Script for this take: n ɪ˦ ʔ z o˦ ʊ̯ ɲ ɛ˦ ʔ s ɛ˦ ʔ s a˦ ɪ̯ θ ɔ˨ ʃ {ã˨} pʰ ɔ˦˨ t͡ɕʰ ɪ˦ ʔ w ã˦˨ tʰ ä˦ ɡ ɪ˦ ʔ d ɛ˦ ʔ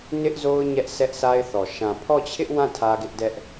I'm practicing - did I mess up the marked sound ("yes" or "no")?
no